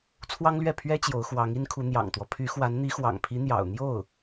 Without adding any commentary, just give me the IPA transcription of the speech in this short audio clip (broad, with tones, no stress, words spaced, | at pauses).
t͡sʰwɑ˥ŋlɥɛ˥˩pʰɥɛ˥ t͡ɕjo˧˥ʊ̯xwɑ˧˥ŋi˥nkʰu˧˥ n̪jɑ̰˨˩ŋt̪wɔ˦ pʰy˧˥xwa˧˥n n̪i˧˥xwɑ̰˨˩ŋpʰi˧˥ n̪jɑ̰˨˩ʊ̯n̪jo˥˩ʊ̯